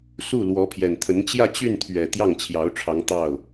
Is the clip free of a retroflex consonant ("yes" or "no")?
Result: no